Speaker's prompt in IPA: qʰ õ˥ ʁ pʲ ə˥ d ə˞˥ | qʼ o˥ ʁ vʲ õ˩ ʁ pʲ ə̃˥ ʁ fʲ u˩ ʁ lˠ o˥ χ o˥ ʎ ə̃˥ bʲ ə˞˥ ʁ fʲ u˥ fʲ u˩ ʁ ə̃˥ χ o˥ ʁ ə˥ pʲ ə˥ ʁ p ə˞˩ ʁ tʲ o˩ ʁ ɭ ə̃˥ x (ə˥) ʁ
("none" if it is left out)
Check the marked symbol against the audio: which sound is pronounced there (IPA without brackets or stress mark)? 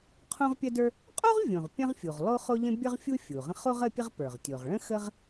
ə˥